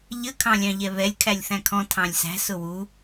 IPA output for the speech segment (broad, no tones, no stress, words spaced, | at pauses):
ʎə kʰɑ̃lʲɑ̃ʎɛβɛlʲ kʰælʲθæ̃kʰɔ̃ tʰɑ̃lʲsæ̤ sʊwu